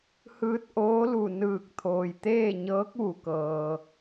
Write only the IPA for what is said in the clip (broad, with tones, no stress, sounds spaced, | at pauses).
h ɯː˧ t̚ ʔ oː˧˥ l u˧˩ n ɯː˧˩ k̚ t̪ʰ oː˩ j t̪ eː˥˨ ɲ ɤː˧˥ k̚ ʋ u˩ k ɤː˩